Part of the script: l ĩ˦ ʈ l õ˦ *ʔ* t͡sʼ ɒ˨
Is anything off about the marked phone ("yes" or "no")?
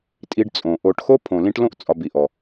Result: no